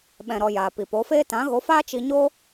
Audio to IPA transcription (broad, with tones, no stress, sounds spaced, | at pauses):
ɓ ɛ̃˨ ɾ ɔ˨ j aː˨ p i˨ p o˨˦ f eː˦ t ã˨˦ ɣ o˨˦ f aː˦ t͡ʃ i˧ ɲ o˦